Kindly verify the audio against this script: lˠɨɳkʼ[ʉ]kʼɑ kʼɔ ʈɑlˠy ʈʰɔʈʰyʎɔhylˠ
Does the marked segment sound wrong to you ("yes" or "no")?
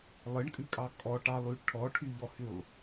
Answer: no